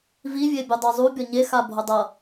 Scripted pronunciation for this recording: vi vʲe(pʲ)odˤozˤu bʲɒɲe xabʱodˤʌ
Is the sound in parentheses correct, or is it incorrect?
incorrect